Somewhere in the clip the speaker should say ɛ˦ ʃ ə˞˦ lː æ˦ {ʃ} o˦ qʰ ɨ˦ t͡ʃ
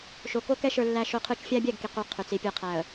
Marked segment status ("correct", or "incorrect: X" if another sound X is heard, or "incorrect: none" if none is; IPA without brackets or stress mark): correct